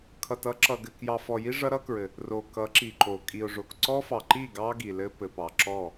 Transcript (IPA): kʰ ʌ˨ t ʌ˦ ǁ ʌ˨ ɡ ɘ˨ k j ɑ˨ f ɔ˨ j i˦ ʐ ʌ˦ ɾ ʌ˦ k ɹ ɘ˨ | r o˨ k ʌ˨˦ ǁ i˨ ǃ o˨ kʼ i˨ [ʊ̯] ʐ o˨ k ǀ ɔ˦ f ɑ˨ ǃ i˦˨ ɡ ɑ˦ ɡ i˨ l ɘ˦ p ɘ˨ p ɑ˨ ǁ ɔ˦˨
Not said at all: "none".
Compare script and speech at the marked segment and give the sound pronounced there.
ʊ̯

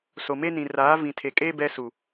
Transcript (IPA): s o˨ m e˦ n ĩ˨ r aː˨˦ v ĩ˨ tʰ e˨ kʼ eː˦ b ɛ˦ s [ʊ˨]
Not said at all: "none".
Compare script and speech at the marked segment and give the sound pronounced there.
u˨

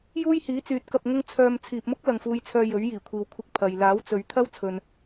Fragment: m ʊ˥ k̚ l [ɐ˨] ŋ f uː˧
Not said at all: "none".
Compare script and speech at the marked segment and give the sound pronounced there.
ɐ˨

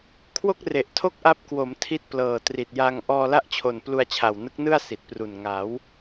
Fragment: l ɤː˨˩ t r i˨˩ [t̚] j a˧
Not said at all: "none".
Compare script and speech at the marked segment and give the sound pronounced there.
t̚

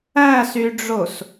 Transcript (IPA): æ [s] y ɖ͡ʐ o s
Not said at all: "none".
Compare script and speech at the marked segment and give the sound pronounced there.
s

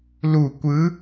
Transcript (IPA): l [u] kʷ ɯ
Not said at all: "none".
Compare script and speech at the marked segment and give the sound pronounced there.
u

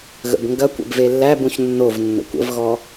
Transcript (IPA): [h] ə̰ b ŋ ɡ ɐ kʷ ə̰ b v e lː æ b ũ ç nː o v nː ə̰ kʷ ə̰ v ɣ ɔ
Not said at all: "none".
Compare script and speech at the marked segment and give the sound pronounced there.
ɣ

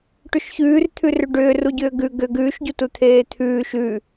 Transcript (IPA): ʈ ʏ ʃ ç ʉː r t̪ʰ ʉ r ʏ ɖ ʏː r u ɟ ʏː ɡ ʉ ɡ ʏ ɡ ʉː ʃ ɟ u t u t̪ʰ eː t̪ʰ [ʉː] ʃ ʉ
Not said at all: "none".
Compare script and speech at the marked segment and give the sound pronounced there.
ʉː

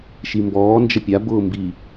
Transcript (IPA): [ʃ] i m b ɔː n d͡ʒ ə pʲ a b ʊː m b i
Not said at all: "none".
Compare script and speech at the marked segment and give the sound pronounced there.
ʃ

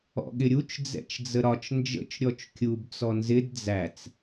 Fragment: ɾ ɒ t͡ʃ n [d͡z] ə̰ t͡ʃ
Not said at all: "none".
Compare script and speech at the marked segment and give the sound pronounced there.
d͡ʒ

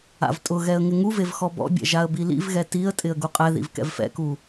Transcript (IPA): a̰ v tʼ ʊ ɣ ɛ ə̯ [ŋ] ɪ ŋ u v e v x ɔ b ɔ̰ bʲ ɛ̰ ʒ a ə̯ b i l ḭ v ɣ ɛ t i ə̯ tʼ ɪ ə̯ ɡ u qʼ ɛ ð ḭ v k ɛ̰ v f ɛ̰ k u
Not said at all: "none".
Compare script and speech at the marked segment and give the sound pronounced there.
ŋ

